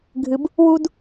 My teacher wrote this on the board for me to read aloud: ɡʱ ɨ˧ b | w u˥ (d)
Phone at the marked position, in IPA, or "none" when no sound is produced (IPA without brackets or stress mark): d